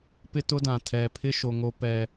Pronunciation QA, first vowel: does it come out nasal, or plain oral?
oral